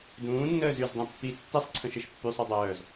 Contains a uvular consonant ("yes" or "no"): no